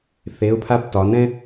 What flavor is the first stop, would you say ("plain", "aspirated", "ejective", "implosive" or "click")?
aspirated